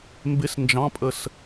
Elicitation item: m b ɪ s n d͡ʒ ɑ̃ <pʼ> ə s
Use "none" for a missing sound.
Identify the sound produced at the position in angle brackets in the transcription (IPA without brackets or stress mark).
pʼ